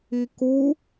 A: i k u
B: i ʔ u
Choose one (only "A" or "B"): A